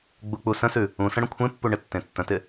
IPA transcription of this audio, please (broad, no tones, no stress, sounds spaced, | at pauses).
ɡ͡b u k͡p u s ə̃ s ʉ | ũ s ə̃ ɽ ə̃ kʷʰ ẽ pː u ɳ ɪ tː ẽ tː ə̃ t ɪ